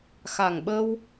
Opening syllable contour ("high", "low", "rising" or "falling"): low